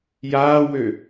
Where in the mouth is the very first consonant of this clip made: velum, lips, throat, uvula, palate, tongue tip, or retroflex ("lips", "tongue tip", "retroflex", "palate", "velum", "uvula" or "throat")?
palate